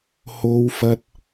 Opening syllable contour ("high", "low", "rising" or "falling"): high